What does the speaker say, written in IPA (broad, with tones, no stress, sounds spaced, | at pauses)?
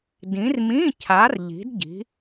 d ĩ˨˦ r m ĩ˧˥˧ cʰ a˨˦ r ʎ i̤˨˦ d ɟ i̤˨˦